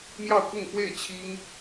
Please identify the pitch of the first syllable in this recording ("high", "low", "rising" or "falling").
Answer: falling